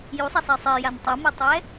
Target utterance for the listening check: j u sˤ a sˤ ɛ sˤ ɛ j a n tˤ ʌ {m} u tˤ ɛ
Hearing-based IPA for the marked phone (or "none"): m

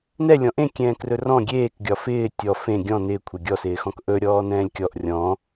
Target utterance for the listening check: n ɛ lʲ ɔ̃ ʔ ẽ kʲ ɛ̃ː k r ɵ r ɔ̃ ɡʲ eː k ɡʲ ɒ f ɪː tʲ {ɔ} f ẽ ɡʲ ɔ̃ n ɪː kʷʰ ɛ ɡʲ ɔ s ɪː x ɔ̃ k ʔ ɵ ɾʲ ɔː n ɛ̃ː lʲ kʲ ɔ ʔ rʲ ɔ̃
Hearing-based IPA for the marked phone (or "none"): ɔ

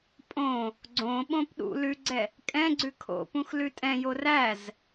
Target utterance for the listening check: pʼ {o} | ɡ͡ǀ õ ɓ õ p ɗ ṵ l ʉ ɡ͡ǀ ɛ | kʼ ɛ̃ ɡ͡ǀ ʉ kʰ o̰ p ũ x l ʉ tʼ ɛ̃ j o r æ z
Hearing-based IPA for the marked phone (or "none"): õ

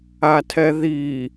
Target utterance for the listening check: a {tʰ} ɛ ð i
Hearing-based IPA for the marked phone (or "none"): tʰ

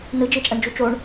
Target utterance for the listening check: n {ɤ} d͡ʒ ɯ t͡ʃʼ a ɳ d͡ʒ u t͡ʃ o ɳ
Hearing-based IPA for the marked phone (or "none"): ɯ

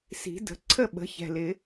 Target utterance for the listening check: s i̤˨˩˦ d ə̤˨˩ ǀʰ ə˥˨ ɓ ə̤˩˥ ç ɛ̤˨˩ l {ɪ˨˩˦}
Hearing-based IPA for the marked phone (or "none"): ɪ˨˩˦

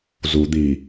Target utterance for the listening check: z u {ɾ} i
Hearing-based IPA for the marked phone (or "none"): d̪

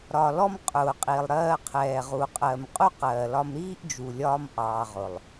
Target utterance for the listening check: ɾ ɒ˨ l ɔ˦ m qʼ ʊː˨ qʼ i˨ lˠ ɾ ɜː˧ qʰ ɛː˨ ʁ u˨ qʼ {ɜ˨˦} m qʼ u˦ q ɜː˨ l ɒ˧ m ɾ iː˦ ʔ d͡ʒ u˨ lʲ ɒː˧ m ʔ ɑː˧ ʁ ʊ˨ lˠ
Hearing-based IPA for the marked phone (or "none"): ɜ˧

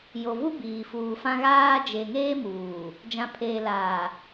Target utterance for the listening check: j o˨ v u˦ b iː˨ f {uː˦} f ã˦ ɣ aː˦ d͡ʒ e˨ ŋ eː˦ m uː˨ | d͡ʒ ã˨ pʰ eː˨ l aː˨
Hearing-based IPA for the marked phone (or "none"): uː˨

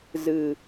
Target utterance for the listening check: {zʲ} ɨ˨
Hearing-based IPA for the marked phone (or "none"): z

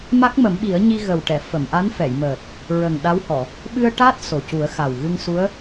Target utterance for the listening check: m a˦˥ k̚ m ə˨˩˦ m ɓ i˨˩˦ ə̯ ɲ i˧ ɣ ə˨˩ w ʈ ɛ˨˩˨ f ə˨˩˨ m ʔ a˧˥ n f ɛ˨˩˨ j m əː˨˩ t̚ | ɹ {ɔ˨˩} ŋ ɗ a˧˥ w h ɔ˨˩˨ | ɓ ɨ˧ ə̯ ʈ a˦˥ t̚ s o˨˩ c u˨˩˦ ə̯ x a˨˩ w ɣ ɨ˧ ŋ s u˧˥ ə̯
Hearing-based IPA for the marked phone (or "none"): ə˨˩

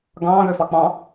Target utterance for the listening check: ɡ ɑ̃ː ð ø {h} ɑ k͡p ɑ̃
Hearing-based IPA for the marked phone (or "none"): f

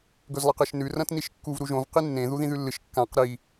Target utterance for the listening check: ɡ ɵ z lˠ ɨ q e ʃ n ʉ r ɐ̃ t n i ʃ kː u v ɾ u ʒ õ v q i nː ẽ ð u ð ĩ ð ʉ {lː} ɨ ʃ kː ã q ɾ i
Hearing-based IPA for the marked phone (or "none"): lː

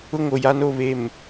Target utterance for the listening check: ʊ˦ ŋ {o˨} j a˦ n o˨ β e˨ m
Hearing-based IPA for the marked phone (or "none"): o˨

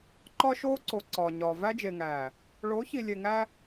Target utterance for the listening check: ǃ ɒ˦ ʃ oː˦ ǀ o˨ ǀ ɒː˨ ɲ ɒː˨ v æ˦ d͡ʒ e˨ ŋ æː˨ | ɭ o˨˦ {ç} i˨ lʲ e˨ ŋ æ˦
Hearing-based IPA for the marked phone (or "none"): ç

